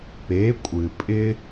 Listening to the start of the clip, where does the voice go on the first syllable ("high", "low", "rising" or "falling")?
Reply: rising